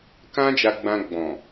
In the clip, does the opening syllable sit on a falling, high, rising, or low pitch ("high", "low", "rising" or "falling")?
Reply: high